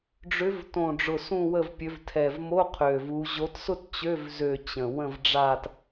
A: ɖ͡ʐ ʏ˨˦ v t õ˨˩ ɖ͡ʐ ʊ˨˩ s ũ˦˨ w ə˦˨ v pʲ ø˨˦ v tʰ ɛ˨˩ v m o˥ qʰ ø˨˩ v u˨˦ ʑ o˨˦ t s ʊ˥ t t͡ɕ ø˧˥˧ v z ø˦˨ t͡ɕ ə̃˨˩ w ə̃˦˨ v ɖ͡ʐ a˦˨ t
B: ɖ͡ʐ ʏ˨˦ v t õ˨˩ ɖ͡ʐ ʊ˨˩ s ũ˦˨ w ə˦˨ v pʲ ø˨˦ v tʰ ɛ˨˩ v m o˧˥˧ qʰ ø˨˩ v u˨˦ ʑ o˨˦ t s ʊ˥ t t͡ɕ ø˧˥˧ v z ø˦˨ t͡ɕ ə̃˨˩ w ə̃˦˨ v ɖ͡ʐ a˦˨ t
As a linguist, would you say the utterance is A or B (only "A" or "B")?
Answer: B